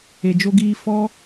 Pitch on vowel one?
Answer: low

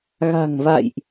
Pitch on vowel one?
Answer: low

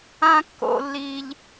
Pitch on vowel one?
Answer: high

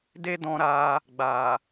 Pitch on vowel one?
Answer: high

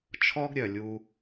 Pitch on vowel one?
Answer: high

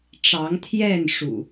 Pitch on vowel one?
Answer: rising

